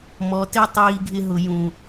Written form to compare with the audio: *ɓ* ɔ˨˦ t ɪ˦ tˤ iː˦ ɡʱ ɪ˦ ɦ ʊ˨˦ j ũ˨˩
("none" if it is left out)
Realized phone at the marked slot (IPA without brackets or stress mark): m